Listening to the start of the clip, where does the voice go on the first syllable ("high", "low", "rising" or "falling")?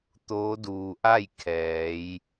rising